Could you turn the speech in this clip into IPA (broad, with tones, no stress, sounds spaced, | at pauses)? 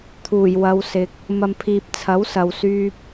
t̪ʰ uː˨˩ j w ɐ˨˧ w s ɪ˨ k̚ | m ɐ˨ m pʰ iː˨ p̚ t͡sʰ ɐ˨˥ w s ɐ˨ w s yː˧ p̚